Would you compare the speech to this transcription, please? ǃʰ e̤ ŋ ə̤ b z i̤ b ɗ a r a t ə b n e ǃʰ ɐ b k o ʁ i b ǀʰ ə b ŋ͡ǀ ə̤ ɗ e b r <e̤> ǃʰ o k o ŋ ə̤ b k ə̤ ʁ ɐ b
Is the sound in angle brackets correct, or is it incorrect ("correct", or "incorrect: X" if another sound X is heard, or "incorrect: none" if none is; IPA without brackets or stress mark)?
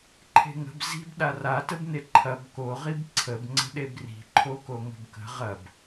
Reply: incorrect: i̤